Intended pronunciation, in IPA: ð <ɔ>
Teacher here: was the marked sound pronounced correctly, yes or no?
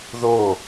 no